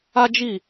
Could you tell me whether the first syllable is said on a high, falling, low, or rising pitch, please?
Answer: high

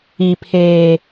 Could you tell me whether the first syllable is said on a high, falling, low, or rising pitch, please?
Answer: high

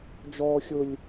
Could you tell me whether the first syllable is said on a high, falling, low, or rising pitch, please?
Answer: high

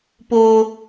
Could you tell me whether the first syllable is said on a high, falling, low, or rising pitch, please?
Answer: high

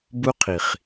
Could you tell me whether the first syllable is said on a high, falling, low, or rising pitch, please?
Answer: high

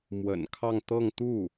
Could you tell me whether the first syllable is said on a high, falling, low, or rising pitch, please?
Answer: low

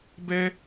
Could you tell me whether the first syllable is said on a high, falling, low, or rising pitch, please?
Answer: high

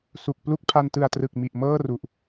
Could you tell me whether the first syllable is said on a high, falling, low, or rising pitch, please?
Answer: low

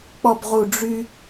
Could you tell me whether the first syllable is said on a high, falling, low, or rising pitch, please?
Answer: low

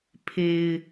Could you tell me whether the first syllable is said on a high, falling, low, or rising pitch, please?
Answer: low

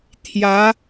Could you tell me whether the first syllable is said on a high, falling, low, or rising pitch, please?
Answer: rising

